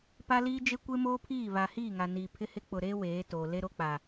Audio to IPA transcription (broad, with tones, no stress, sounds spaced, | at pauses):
p a˦ l iː˦ d͡ʒ e˦ kʷ e˦ m oː˦ pʰ iː˦˨ β a˨ h iː˦˨ ŋ a˨ n iː˨ pʰ ɪ˦ h ɪ˦ k͡p ʊ˨ ɾ e˦ w eː˨˦ t o˨ l e˦ ɾ o˦ k͡p a˨